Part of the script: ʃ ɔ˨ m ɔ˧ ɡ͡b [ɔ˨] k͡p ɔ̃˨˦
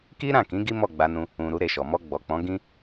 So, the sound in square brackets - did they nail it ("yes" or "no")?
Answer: yes